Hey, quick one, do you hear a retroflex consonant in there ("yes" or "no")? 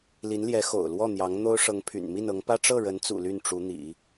yes